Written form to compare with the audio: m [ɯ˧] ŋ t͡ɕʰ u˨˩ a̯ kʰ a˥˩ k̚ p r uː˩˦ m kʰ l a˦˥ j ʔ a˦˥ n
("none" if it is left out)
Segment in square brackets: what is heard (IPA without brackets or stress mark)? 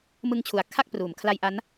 ɯ˧